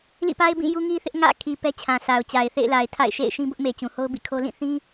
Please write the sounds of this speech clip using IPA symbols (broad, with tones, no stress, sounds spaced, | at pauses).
l ḭ˦˨ p a˦ ɪ̯ b ĩ˦˨ j u˦ ŋ i˦ θ ɪ˦ ʔ ŋ ä̰˦˨ kʰ i˨ p ɛ˦ t͡ɕʰ ã˨ sʰ a˨ ʊ̯ t͡ɕ a˨ ɪ̯ θ ḛ˦˨ ɪ̯ l a˨ ɪ̯ tʰ a̰˦˨ ɪ̯ ʃ ḛ˦˨ ɪ̯ ʃ ĩ˦ b ʊ˦ ʔ m e˨ t͡ɕ ũ˨ h o˦ ʊ̯ b ḭ˦˨ kʰ o˦ l ĩ˦˨ θ ĩ˦